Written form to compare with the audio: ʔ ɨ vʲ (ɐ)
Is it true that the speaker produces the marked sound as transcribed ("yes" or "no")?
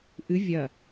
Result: yes